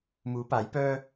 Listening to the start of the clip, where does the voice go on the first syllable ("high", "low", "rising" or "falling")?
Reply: rising